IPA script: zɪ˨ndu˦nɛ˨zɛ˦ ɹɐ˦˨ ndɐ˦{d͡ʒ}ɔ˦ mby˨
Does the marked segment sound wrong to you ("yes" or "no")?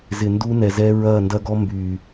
yes